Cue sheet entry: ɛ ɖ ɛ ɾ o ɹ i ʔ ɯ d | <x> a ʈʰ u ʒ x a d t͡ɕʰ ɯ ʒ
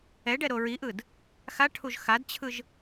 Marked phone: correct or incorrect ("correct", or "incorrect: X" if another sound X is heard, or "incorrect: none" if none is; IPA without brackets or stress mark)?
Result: correct